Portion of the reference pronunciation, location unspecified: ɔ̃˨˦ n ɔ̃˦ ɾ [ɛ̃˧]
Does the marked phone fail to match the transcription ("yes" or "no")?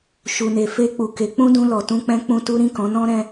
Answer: no